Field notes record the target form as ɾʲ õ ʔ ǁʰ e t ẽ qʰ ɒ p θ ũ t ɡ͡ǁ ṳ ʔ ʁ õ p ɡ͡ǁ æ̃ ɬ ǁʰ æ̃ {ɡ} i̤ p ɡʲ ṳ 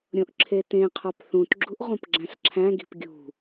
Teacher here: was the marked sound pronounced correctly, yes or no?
yes